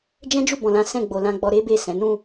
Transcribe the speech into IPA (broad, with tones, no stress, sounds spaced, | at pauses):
d͡ʒ ɛ̃˦ d͡ʒ u˦˨ b ɔ̃˨ l ã˨˦ s ɛ̃˦˨ ɡ͡b o˨ l ã˧ ɡ͡b ɔ˧ ɾ e˦ b e˦˨ s ɛ̃˨˦ n ũ˦˨